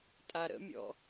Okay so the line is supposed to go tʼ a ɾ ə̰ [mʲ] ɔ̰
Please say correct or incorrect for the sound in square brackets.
correct